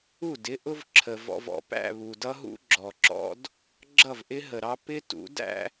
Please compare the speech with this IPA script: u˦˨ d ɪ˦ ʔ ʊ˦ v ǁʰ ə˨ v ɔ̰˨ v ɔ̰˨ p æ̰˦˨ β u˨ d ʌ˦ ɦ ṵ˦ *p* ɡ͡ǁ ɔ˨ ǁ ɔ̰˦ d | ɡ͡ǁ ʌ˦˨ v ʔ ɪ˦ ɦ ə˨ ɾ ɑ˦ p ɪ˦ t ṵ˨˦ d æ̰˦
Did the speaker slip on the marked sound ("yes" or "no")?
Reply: yes